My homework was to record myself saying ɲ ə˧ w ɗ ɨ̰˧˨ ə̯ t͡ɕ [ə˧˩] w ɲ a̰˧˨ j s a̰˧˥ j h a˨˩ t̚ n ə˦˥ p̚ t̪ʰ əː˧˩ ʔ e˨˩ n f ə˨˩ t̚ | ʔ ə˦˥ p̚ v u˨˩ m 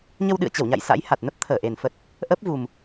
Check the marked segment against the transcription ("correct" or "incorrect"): correct